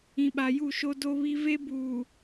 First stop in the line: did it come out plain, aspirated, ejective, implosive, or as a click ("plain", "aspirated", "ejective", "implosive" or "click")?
implosive